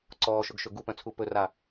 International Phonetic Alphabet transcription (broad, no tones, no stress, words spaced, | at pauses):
ǀɔːʃɵɡʃɵ ɡupœ̃t͡sʰu pɵra